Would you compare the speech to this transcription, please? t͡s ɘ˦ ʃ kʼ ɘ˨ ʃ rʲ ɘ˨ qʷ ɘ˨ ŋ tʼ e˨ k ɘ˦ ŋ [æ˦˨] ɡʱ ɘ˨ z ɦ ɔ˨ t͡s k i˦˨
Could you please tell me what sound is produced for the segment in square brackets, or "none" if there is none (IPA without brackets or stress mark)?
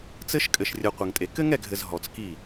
ɛ˦˨